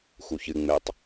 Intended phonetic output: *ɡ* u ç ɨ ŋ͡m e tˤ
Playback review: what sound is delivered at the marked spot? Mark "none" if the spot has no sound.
x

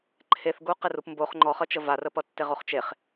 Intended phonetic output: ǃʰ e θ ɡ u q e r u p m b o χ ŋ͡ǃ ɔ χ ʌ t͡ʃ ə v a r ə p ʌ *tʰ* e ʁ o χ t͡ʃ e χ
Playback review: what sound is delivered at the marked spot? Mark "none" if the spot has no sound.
tː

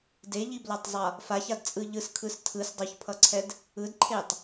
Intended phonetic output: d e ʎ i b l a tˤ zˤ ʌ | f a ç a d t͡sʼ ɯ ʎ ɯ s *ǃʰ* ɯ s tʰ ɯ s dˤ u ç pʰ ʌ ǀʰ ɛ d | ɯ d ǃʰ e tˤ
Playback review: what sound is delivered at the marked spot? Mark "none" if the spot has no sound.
kʰ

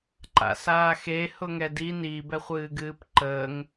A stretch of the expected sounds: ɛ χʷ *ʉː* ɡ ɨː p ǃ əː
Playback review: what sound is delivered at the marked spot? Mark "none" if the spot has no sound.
ɨː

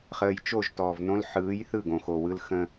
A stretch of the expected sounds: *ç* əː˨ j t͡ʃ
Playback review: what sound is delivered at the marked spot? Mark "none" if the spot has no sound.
χ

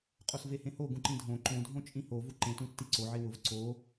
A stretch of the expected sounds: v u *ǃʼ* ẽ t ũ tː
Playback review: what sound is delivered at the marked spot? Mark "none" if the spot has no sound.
ǃ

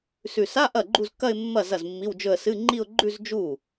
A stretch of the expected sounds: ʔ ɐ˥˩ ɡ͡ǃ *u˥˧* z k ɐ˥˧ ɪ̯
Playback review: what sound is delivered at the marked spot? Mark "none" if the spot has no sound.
u˥˧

